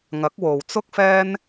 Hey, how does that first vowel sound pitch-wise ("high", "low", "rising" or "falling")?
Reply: rising